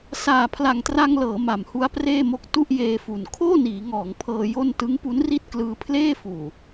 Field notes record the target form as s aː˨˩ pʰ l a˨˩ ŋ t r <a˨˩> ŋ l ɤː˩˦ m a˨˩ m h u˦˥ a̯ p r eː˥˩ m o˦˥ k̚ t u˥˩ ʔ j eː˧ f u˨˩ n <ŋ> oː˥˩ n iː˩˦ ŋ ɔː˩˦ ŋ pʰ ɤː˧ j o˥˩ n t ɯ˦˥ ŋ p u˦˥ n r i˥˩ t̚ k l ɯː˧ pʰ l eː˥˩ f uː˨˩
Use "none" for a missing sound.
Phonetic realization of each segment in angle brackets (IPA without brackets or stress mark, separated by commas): a˧, kʰ